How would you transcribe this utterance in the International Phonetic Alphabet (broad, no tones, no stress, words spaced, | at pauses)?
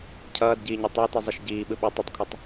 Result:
cʰʌːdɟiːɲɯ tˤoti zˤʌʃɟiː ɓɯɓo tˤʌtˤkʷʰʌtˤ